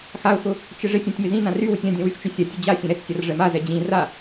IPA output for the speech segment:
x a ʊ̯ x ʊ | t͡ʃ ɪ ʐ ɪ tʲ ã tʲ m ɪ z ĩ n ã r y w ʊ tʲ ã dʲ ɛ̃ w y x t͡ʃ ø sʲ a tʲ ʊ d͡ʑ a sʲ ɛ̃ ɾ ɛ t͡s sʲ a r ʐ ɛ m a z ɛ d͡ʑ ĩ r a

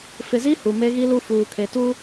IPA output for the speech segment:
f ɪ˨ z i˦ h u˨ m e˦ ɣ i˦ l u˦ f uː˨ kʰ e˨ t u˦

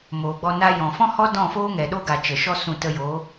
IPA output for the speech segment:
m oː˨ ɡ͡b ɔ˧ n a˧ j ɔ̃˨ f ɔ̃˦ h ɔ˦ d ɔ̃˦˨ f oː˦ ŋ ɛ˨ ɗ o˦ ɡ a˨ t͡ʃ ə˨ ʃ ɔ˦ s ũ˧ t ə˧ j oː˨˦

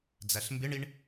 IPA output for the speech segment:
d͡z æ ɬ m b ɪ ɳ i ɳ

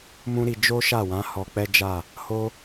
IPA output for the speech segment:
m ũ˦ ɾ i˧ d͡ʒ o˦ ʃ a˦˨ w ã˨˦ h ɔ˧ k͡p ɛ˦ d͡ʒ a˦˨ | h o˦

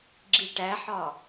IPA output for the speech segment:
ɡ͡ǁ i ʈ æ ħ ɒ

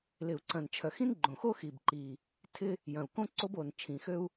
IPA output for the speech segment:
l ɪ˨˩ u̯ ǀ ɐ̃˨˩ n t͡ʃʰ œ˨˩ x ĩ˥ n ɡ͡ǃ õ˨˩ x o˥ x i˨˩ b ǃ i˨˩ | tʰ ɪ˥ | j ɐ̃˨˩ u̯ k õ˥ ǀ o˥ b o˨˩ n t͡ʃʰ ĩ˨˩ x ø˥ u̯

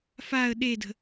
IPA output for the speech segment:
f a ə̯ ɗ e d ə̤

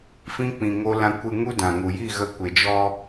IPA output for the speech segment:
f ĩ˦ k͡p ĩ˧ ŋ o˦ l ã˦ kʷ ɨ˧ ŋ u˦ d ã˨ ŋ u˨ j i˦˨ ɣ ə˧ kʷ e˨ d͡ʒ ɔ˧

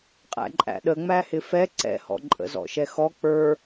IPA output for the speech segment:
qʼ æ̰ ǃʼ æ̰ ɗ ə ŋ͡m æ h ɪ f ɛ ǀ ɛ̰ h ɔ̰ ǃʼ ə̰ z ɔ̰ ʃ ɛ x ɔ k͡p ə˞

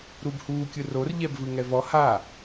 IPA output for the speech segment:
ɾ u b h uː kʲ ɯ r o r ʎ ɛ b v ɯ ŋ ɛ v ɔ h a

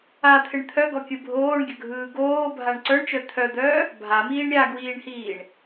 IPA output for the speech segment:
a t̪ʰ ɪ ɳ t̪ʰ œ ɡ ɔ kʲ ɯ bʱ oː ɳ ɡʲ ə ɡʱ ɯː ɡ oː bʱ a ɳ ǀ œ ɳ t͡ʃ œ t̪ʰ œ d̪ œː | bʱ a m iː ɳ ɾʲ a ɡ w iː ɳ h iː ɳ

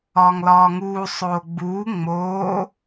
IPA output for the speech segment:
ɒː ŋ l ɒː ŋ uː sˤ oː ɡ͡b uː ŋ͡m oː

